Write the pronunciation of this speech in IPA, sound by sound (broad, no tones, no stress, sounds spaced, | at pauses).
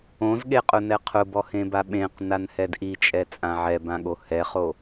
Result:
õ z ɠ e qʼ ʊ n ɛ qʰ ʊ b ɔ h ẽ b a ɓ ẽ q n a n h ɛ d ʔ i t͡ʃʼ ɛ t͡sʼ ã ʕ ɛ b ã ɠ o h ɛ χ o